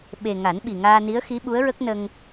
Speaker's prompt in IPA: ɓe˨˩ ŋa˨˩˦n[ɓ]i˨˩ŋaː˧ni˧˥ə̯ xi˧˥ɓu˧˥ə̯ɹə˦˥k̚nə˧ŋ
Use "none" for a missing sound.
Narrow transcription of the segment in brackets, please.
ɓ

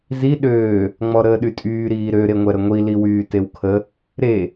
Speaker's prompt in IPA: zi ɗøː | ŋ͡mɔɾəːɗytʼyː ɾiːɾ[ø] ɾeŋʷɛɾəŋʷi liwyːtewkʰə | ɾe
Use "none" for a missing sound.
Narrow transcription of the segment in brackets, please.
ø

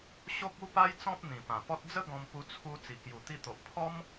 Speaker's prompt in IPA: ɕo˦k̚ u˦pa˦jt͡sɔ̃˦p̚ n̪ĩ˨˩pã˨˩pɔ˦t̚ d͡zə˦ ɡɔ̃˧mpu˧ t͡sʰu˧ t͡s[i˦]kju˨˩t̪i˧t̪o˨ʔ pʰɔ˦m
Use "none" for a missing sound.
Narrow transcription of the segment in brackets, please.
i˨˩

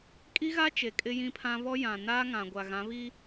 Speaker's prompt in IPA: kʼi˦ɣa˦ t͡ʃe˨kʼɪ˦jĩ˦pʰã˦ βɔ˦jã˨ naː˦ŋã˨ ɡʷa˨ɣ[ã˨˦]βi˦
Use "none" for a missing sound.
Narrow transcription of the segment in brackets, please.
ã˨˦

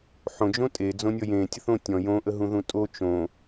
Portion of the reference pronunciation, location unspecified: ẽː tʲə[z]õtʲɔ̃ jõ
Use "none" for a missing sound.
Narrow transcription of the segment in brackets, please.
θ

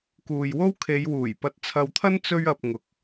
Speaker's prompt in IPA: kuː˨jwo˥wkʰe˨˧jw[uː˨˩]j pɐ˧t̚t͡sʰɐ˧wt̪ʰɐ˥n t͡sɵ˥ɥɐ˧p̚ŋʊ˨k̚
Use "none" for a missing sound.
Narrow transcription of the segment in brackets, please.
uː˨˩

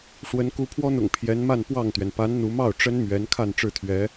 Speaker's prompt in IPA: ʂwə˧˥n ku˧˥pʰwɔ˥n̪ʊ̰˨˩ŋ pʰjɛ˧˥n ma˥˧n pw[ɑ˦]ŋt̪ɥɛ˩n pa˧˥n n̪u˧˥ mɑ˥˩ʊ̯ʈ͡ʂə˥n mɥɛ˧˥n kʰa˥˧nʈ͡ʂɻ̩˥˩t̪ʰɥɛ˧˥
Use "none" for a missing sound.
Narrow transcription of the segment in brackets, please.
ɑ˥˩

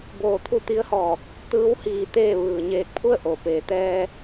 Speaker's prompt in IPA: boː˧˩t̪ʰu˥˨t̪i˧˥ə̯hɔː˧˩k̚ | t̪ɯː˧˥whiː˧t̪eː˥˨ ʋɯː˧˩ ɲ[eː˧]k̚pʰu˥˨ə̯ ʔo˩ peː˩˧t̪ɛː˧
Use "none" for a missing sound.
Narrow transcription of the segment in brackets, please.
eː˧˩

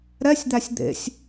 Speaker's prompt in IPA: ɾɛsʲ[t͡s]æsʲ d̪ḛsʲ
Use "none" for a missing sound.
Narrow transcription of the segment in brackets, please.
d̪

